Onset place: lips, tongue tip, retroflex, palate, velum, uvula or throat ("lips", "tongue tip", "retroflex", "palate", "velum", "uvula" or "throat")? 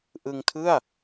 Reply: throat